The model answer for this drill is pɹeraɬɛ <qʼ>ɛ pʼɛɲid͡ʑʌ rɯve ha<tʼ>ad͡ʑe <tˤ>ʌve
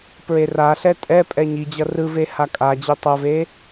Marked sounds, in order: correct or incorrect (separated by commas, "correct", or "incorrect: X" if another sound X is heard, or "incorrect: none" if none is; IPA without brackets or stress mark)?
incorrect: tʼ, incorrect: kʼ, correct